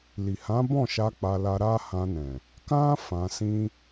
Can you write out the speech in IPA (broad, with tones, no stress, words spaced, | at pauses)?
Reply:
li˨hã˨˦bɔ̃˦˨ʃa˧ k͡pa˧la˧ ɾa˦hã˧nɛ̃˨ | kã˦ fã˧sĩ˦